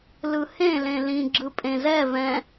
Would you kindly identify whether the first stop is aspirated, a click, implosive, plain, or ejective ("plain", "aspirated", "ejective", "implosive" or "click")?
click